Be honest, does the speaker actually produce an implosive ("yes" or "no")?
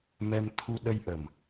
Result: yes